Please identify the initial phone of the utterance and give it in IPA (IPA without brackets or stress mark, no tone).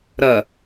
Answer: ɾ